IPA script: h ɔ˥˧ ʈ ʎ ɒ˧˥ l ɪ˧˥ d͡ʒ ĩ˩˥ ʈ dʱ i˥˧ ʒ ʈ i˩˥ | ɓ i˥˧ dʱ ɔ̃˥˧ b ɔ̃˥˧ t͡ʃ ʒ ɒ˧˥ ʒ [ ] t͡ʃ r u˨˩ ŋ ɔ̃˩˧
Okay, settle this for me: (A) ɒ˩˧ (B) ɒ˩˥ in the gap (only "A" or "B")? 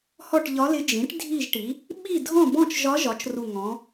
B